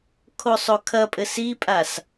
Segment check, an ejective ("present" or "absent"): present